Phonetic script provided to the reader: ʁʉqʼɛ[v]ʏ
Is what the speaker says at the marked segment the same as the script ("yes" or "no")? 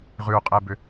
no